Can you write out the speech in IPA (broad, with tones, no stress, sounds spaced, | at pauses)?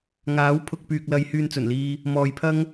ŋ aː˨˥ w pʰ ʊ˧ k̚ p yː˨ k̚ l ɐ˧ j h yː˧ n t͡s ɵ˨˩ n l iː˧ | m ɔː˨ j pʰ ɐ˥ ŋ